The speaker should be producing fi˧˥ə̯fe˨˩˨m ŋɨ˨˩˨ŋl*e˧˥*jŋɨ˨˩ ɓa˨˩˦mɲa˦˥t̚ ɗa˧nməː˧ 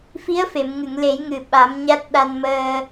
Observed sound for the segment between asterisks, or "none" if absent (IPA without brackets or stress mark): e˨˩˦